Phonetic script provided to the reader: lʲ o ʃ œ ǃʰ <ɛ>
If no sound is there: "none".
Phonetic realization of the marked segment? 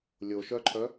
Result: œ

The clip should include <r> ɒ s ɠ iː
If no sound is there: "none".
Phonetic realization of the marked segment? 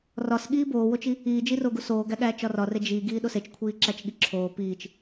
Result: r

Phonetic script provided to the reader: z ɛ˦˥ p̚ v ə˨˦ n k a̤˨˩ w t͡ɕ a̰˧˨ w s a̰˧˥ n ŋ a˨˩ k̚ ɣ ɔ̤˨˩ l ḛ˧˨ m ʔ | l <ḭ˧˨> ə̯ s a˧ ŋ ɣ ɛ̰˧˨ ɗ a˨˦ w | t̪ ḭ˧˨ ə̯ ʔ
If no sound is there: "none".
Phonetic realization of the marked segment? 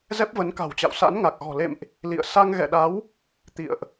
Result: ḭ˧˨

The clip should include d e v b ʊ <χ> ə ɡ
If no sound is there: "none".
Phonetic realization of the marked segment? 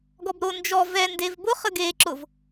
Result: χ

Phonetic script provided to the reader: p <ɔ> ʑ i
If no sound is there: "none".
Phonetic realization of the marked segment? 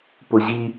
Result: ʊ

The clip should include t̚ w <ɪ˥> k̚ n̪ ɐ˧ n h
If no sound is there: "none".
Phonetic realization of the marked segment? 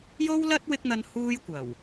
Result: ɪ˥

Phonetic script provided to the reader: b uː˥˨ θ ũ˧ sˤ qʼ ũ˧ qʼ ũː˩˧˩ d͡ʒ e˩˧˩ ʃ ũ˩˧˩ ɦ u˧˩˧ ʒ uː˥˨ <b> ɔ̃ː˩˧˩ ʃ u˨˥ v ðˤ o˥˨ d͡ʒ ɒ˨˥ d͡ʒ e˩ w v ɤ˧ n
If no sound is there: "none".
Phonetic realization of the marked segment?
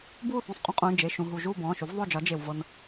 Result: b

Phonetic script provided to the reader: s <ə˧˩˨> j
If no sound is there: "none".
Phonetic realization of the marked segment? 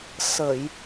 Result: ə˧˩˨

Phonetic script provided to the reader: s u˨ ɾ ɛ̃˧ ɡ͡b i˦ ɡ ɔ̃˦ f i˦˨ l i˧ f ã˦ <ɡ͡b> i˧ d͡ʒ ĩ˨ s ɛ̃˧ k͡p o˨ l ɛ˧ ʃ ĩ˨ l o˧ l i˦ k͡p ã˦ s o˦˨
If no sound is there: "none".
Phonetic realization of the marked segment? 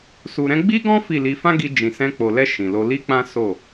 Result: ɡ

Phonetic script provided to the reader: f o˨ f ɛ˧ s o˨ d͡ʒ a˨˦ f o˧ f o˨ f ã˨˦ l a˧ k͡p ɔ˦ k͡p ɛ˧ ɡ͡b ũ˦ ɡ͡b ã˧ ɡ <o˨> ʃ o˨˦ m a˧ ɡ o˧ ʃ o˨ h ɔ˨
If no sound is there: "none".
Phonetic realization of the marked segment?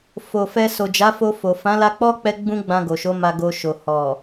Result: o˨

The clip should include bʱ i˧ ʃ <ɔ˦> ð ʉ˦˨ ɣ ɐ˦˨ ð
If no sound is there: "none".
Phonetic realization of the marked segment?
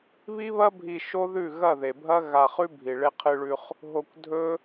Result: o˦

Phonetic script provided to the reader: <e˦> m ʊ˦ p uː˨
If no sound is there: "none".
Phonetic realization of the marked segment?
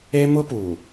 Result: e˦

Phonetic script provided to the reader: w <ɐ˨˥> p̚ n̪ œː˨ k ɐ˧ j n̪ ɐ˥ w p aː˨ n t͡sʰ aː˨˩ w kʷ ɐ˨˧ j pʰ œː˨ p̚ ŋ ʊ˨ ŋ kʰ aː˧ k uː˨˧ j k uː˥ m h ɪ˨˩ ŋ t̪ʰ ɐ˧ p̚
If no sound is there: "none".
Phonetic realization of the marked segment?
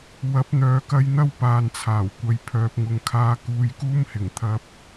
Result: ɐ˨˥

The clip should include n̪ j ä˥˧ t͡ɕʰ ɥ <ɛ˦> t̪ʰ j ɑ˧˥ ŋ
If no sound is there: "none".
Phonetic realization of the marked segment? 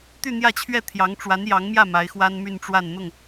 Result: ɛ˥˩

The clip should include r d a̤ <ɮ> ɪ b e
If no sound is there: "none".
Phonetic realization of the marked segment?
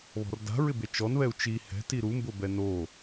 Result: ɹ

